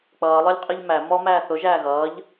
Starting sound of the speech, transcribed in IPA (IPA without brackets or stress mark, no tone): k͡p